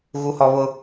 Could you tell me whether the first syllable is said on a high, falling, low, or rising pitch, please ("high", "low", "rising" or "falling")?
low